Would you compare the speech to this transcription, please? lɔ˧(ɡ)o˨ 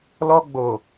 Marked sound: incorrect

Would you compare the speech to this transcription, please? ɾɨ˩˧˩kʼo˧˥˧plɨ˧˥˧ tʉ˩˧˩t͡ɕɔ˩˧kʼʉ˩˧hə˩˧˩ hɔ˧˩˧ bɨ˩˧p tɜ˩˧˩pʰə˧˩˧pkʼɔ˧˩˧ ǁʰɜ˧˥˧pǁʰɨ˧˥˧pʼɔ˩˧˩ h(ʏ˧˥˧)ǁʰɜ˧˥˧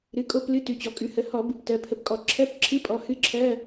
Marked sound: incorrect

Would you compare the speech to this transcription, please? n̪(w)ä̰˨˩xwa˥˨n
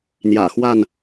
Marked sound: incorrect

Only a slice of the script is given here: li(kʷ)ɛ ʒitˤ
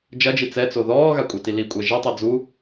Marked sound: incorrect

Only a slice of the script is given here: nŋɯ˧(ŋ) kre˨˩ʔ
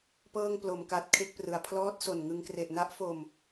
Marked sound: correct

